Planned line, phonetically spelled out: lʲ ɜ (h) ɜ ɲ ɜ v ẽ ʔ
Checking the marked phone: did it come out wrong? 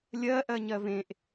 yes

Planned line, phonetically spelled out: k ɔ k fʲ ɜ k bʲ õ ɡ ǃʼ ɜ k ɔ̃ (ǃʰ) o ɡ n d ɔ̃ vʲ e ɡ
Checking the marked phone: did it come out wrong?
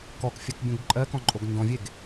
yes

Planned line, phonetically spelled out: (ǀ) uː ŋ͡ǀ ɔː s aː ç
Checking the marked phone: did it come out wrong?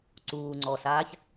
no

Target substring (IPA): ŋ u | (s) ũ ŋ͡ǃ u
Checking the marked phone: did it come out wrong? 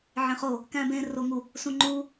no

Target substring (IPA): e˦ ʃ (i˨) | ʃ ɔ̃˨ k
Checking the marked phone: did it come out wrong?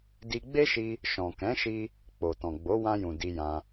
yes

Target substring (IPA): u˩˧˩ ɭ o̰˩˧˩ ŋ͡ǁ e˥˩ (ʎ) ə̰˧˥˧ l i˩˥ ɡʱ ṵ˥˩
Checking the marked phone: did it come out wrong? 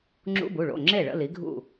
yes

